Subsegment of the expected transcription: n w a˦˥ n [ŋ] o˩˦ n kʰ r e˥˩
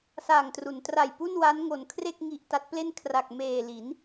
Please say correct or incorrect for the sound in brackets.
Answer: correct